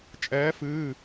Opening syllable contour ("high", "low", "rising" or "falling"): rising